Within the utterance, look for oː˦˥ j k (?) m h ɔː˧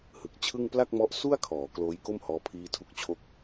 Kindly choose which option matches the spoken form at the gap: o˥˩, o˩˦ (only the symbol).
o˥˩